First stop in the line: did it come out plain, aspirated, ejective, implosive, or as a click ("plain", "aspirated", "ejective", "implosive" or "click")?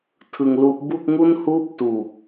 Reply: aspirated